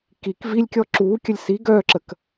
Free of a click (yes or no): no